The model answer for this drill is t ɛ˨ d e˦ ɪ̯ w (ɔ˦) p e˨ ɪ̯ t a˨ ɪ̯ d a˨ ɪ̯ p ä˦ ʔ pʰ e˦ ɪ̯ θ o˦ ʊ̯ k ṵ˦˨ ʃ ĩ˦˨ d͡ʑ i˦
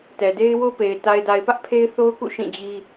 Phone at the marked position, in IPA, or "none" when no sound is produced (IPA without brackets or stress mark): o˦